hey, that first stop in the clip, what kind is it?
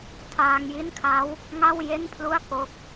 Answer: aspirated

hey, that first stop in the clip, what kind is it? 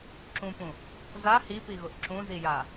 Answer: click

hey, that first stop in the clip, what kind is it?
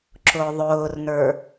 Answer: click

